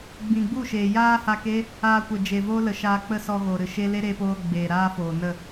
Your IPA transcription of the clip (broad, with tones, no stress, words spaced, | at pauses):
ɡ͡bĩ˨ɡ͡bu˦˨ʃeː˨ jaː˦ha˧ke˦ | aː˧kʷə˨d͡ʒe˨vo˦ lə˨ ʃaː˧k͡pə˦sɔ˧ɣo˨ ɾɨ˨ʃe˦ le˦ɾeː˧poː˧ ɡ͡beː˨ɾaː˦foː˨nə˦˨